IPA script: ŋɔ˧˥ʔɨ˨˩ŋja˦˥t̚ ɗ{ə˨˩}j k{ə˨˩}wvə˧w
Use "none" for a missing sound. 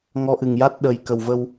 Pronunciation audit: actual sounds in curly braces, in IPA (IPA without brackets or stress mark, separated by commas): ə˨˩˨, ə˨˩